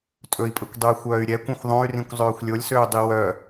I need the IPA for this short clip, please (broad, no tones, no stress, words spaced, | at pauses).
tʼɵi̯pʼɵkʷdˤøy̯ xʷœːy̯ɾʲɛkʷœ̃xʷ ðˤõy̯rĩkʷ zˤøːxʷlʲolʲsøː dˤiwœ